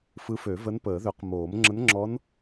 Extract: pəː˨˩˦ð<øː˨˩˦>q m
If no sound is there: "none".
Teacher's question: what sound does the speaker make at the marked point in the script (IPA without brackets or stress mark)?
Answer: ø˨˩˦